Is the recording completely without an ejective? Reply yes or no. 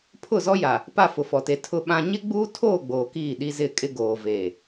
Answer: no